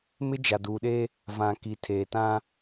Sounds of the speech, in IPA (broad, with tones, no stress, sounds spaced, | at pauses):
m ɪ˦ d͡ʒ a˨ d uː˨ ɗ e˦ | v ã˨ k i˨ tʰ eː˨ t ã˦